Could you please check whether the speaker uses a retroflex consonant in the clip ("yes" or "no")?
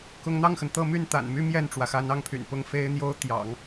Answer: yes